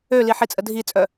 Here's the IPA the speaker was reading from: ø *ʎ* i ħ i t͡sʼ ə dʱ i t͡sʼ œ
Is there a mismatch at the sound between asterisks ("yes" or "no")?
yes